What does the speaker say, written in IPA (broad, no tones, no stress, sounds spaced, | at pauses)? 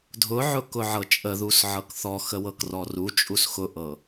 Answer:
dʱ ʊ ʕ ʊ k ʊ ʕ ɤ t͡ʃʼ ə ð u s ʕ ɤ k θ ɔ x ə w ɤ k r ɔ r u t͡ʃʼ u s x ʊ ʔ ɤ